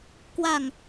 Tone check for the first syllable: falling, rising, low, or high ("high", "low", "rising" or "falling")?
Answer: low